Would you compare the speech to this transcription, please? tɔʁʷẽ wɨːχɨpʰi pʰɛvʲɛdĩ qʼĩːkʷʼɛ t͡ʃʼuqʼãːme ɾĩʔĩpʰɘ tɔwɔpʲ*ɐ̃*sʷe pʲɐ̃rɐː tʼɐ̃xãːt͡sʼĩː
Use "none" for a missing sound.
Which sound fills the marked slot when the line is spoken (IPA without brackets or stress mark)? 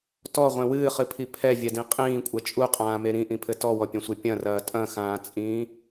ɐ̃